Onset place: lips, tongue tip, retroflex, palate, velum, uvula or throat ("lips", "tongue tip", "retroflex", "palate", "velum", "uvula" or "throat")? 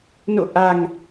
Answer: tongue tip